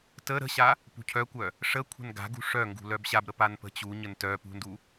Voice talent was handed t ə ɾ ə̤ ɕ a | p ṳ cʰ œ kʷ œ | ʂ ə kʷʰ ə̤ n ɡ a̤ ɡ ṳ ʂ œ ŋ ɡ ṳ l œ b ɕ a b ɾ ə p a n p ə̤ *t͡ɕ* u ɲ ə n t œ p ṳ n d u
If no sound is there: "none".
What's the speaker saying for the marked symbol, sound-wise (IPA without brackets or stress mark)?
t͡ɕ